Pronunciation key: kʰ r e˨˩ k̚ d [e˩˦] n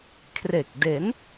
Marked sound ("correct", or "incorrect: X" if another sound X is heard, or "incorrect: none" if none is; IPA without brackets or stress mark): correct